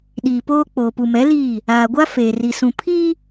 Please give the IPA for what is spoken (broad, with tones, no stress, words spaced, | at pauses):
ɗiː˨poː˦ k͡poː˨pu˨mɛ˨˦liː˦˨ | aː˨ɡʷa˦ feː˨ri˨sũ˨ pʰiː˦